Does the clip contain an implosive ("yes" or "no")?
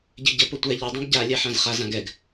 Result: no